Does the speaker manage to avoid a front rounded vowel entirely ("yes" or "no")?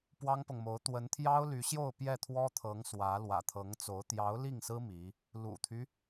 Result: no